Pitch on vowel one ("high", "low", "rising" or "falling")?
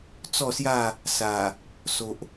falling